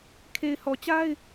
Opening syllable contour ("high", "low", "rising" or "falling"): low